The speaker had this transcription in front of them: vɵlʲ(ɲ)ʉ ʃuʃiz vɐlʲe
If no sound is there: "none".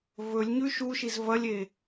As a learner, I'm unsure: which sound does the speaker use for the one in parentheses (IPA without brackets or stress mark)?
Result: ɲ